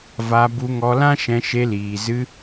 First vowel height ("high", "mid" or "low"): low